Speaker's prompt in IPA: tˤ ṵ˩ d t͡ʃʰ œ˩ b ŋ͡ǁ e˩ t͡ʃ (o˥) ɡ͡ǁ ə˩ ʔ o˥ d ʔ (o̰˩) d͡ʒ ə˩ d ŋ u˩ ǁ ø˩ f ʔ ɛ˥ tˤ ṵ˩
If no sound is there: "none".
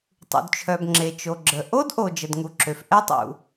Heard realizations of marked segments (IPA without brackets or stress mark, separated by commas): o˩, o˩